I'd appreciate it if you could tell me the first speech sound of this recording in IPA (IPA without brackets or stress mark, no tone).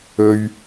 ɵ